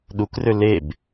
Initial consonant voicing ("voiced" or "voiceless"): voiced